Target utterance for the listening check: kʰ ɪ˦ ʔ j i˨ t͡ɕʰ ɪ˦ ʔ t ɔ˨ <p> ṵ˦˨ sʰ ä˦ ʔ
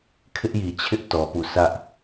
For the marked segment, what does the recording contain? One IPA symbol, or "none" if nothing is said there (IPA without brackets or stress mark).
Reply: p